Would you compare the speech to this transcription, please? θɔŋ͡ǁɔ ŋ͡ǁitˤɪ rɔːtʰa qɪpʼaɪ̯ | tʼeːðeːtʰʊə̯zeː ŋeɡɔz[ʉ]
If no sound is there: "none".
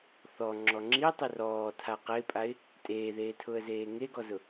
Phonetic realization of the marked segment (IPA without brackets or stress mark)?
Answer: ʊ